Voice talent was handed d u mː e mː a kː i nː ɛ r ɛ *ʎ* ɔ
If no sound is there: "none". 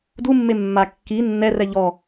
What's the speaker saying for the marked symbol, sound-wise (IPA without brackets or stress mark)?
ʎ